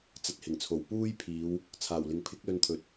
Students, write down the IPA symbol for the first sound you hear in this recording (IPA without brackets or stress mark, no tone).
t͡s